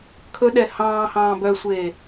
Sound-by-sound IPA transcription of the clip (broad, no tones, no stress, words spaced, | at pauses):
kʰɵɗɛ hɑ̃ːhɑ̃ː bœsʷeː